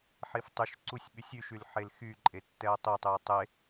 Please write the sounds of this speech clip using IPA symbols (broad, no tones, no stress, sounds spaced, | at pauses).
ħ i f tˤ y ʃ ǀ u sʲ ɓ y sʲ y ʃ y l ħ e l x y ǃʼ e tː ɛ ɐ̯ tˤ i tˤ y ɐ̯ tˤ e